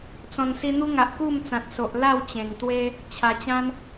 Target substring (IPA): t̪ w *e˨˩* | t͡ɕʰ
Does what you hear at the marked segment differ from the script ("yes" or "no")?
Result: yes